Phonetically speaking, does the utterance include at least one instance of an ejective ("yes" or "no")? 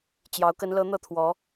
no